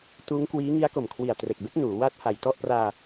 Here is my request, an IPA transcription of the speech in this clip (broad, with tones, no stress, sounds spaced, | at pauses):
t uː˦˥ ŋ k w iː˦˥ ŋ i˦˥ a̯ k o˨˩ m kʰ w i˨˩ a̯ t r e˨˩ k̚ b e˦˥ k̚ n uː˩˦ w aː˦˥ t̚ h a˨˩ j t ɔ˥˩ ʔ p r aː˧